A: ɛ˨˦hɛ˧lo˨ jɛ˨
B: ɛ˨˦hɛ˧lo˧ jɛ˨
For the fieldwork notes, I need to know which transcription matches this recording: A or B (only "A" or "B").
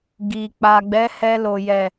A